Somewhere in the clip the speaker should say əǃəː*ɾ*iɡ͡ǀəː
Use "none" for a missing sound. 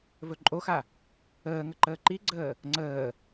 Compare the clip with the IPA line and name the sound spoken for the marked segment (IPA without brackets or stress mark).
ǃ